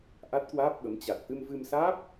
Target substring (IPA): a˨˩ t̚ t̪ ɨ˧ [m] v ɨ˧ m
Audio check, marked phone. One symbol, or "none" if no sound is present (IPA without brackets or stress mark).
m